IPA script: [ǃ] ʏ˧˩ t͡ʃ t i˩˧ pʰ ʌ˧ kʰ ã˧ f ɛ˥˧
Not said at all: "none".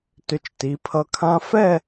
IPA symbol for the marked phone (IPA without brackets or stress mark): t